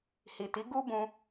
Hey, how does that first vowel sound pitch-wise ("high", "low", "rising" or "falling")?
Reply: low